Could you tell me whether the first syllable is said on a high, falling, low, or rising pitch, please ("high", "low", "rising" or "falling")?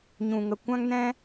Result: low